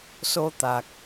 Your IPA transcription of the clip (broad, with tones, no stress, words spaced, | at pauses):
so˧t̪a˨˩k̚